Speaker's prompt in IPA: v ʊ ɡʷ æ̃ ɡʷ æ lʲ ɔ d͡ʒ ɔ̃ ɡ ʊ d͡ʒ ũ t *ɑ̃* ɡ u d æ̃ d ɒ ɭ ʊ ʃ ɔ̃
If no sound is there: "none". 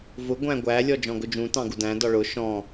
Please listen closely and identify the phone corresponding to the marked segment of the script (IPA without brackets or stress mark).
ɑ̃